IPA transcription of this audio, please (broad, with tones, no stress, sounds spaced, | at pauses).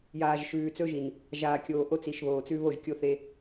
j aː˨ ʒ ʃ ʉː˨ t͡s ɵ˦ ʒ i˨ n | ʒ aː˨ kʲ oː˨ ʔ o˦ t͡s i˨ ʃ β oː˨ t͡s ʉ˦ β o˦˨ ʒ kʲ o˦ θ e˦